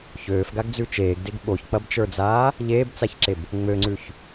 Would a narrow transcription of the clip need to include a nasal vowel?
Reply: no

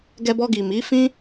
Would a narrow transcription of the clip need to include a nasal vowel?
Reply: yes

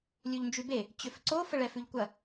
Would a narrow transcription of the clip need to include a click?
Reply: yes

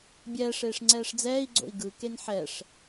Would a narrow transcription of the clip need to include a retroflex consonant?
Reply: yes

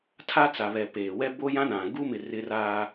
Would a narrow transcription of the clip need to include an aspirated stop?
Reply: yes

